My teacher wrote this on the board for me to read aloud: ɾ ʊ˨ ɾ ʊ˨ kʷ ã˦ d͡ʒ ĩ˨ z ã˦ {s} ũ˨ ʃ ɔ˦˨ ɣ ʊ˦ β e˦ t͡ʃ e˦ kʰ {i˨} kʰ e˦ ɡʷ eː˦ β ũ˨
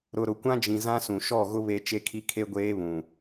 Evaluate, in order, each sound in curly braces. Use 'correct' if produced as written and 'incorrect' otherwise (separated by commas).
correct, incorrect